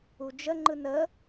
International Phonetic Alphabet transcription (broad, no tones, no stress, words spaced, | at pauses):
ud͡ʒəŋ͡ǃɯn ə